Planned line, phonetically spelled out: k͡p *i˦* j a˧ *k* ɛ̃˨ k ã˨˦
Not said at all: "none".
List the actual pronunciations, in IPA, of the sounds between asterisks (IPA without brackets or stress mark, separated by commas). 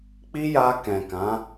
i˦, k